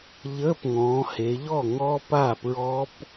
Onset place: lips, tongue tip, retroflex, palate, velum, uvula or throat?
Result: palate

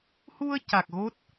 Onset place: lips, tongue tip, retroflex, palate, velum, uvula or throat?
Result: throat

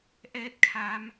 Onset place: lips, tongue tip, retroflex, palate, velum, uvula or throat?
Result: throat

